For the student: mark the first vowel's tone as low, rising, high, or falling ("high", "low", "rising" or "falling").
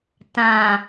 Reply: low